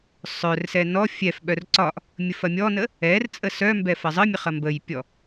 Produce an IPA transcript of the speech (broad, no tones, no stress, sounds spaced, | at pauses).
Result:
sˤ œ r s ɛ n ɔ fʲ ɛ f ɓ œ r ǀ ɒ ʔ | mʲ ə f ɐ mʲ ɔ n ə | ɛ r t͡sʼ ə s œ m b ɛ f ɐ zˤ ə mʲ ə χ ɐ m b ə j pʲ ɔ